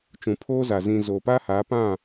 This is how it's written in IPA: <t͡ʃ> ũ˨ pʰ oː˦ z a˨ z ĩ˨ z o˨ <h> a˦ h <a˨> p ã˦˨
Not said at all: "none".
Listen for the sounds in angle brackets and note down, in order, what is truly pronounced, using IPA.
t͡ʃ, p, a˨˦

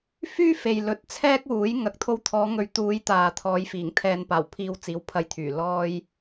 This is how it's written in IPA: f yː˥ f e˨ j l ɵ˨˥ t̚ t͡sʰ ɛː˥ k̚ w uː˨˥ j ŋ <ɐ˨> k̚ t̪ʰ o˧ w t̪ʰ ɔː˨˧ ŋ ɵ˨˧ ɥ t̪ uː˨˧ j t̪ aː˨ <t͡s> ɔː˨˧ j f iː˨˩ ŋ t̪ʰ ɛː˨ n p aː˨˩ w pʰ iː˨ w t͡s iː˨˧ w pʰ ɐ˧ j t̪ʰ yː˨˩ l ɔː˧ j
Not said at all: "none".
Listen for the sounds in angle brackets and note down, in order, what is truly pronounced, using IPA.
ɐ˨, t̪ʰ

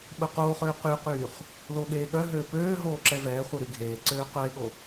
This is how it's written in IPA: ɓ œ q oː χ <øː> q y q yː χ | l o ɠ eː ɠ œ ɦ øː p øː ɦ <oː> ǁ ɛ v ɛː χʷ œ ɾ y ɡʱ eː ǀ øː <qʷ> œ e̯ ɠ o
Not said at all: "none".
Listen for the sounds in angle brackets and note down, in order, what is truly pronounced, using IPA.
øː, oː, q

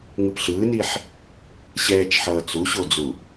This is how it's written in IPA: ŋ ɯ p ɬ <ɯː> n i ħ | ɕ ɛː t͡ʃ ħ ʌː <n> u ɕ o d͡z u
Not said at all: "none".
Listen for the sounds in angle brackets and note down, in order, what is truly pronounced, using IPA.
ɯː, t͡s

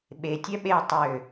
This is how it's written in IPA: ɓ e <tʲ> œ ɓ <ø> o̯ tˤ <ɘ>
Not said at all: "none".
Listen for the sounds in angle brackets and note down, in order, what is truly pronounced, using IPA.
tʲ, e, ø

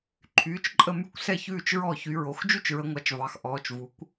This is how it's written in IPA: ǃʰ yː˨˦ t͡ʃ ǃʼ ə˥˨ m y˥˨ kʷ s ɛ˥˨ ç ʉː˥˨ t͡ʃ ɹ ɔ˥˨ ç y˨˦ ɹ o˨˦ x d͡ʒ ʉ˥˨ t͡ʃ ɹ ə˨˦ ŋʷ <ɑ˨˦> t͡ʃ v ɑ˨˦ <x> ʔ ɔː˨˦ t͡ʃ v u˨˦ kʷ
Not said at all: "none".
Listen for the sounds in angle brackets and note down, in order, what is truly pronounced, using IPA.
ɑ˨˦, x

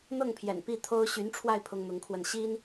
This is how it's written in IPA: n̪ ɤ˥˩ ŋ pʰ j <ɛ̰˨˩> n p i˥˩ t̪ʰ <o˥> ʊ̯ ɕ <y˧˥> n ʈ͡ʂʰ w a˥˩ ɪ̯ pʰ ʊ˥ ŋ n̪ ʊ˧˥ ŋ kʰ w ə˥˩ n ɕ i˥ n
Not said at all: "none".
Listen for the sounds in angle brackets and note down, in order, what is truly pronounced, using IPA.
ɛ̰˨˩, o˥, y˧˥

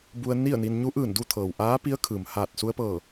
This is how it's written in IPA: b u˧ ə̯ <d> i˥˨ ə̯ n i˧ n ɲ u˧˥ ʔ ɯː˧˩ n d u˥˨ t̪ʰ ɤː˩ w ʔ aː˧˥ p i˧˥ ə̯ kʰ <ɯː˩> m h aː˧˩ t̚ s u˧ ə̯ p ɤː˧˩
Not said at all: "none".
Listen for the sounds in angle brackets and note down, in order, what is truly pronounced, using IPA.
n, ɯː˩

